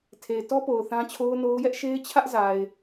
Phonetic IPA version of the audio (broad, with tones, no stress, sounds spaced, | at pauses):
tʰ e˨ ɪ̯ t ɔ˦ p o˨ ʊ̯ θ ã˦ t͡ɕʰ o˦ ʊ̯ n o˦ ʊ̯ j ɛ˦ ʔ ʃ e˦ ɪ̯ t͡ɕʰ ä˦ ʔ z a˨ ɪ̯